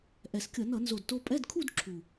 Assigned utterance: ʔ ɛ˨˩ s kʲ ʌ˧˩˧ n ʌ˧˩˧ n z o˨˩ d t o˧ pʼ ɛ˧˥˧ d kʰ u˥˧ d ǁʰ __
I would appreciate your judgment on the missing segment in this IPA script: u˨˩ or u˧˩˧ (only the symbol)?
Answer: u˨˩